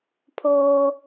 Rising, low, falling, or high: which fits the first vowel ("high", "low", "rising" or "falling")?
high